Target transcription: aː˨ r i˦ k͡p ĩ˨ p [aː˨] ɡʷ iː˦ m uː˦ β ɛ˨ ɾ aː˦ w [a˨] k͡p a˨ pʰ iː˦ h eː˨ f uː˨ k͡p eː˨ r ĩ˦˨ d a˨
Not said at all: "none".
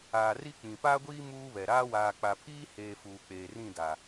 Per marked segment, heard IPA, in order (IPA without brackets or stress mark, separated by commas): aː˦, aː˨